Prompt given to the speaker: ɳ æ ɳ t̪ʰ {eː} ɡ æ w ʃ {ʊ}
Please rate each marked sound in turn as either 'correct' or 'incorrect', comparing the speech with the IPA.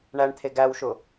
incorrect, correct

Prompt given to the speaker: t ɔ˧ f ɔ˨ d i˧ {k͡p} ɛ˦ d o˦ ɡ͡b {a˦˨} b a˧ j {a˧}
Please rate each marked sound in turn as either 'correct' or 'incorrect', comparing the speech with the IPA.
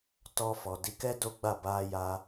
incorrect, correct, correct

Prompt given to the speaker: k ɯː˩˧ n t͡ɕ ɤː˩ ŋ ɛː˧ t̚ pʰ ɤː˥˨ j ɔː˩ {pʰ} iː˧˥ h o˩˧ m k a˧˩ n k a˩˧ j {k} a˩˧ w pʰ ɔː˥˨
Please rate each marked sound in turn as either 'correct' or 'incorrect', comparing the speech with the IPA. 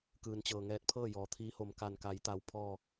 incorrect, incorrect

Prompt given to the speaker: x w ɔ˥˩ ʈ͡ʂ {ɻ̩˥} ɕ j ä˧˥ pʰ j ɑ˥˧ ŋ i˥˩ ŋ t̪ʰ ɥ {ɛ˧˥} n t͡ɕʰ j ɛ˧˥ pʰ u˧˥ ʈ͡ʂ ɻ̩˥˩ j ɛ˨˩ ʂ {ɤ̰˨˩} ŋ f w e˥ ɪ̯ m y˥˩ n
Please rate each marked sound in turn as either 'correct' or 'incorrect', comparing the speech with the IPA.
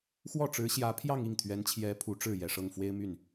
incorrect, correct, incorrect

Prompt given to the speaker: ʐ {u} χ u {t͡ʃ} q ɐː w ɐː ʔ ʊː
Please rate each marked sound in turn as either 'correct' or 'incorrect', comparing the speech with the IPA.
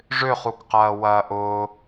incorrect, incorrect

